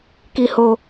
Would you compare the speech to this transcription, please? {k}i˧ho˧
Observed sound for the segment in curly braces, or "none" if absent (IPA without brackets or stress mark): k